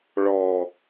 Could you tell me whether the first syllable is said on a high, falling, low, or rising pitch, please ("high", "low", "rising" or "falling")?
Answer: low